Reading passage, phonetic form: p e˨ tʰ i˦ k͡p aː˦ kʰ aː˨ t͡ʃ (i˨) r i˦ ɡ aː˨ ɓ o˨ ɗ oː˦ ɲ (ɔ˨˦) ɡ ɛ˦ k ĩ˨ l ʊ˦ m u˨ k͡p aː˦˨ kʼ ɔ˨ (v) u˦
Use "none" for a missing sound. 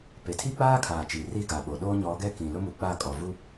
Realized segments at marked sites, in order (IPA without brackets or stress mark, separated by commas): i˨, ɔ˨˦, v